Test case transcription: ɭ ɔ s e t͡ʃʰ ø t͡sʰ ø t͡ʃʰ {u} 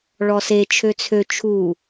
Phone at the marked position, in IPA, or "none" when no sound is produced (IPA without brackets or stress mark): u